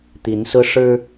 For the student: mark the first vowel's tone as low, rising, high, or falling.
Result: rising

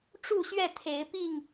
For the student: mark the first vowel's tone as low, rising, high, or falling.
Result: falling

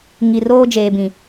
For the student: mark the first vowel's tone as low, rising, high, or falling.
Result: low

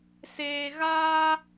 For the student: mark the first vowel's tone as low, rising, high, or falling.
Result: low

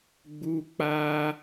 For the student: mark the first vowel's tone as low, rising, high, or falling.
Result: high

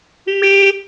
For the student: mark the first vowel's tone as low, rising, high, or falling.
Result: high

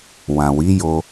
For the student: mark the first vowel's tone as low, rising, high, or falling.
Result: low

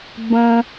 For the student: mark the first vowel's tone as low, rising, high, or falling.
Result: low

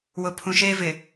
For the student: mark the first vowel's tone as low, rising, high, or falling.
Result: low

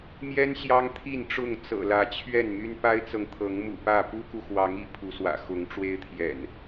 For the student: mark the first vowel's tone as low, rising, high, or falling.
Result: high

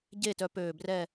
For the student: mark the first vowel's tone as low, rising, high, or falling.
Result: falling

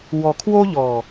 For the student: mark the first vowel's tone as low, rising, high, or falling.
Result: low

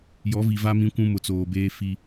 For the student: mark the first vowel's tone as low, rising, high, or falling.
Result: rising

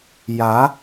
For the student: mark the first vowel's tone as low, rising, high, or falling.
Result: rising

